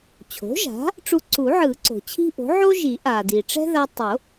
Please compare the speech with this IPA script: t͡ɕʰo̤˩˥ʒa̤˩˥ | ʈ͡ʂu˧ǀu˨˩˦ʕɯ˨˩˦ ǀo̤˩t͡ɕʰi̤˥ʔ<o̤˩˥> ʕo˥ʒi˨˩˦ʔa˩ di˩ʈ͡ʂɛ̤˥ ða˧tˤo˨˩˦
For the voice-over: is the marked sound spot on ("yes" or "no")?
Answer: yes